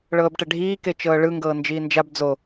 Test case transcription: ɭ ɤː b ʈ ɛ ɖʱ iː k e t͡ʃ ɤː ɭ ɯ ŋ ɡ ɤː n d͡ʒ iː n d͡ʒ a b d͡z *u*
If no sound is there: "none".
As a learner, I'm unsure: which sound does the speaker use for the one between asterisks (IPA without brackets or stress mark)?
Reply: o